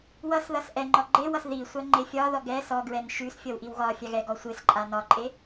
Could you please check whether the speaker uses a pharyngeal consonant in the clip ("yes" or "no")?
no